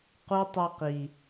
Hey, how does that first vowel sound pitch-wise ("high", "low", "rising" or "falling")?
high